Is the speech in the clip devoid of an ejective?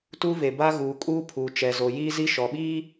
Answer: no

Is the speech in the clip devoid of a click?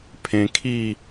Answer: yes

